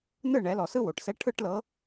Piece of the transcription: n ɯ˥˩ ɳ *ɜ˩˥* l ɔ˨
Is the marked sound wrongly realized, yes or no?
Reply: yes